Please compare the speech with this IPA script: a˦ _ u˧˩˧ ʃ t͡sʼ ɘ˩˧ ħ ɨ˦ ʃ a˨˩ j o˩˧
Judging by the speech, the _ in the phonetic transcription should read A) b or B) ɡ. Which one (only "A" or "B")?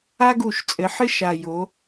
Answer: B